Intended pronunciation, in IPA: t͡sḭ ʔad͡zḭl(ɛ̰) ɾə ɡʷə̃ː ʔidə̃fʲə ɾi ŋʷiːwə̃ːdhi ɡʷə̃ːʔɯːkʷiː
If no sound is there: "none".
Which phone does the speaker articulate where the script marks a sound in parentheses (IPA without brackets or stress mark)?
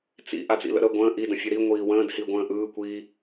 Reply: ə̰